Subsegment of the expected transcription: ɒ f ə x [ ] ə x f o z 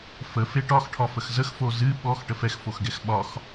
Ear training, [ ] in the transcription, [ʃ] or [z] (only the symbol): z